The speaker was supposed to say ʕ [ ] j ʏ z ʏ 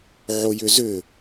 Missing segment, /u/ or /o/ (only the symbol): o